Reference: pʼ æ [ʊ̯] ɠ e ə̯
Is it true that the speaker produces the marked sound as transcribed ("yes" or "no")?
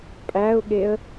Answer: yes